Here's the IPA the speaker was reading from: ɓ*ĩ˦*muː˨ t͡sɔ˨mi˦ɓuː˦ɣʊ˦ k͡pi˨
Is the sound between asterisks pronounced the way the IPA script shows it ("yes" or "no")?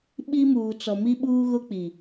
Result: no